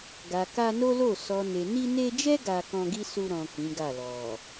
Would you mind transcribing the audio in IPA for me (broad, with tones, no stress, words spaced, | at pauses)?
ɡa˨ka˧no˦lo˦˨ sɔ˨ne˨ ni˧ne˧d͡ʒɛ˦ ɡa˧ kɔ̃˧ɡi˦su˧ɾɔ̃˨ kĩ˨˦ɡa˦˨ lɔ˨